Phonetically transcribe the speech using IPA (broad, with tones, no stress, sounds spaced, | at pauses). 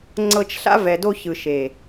ŋ͡ǀ ɤ˧ t͡ʃ ɬ a̰˦ v ɛ˨ d o˧ ç ɯ˨ ʃ e˨